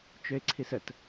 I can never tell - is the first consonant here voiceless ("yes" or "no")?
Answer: yes